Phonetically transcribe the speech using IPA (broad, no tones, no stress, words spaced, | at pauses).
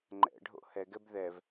ŋ͡ǃɛ̰ɖʱo̰ hɛɡɛb ðɛv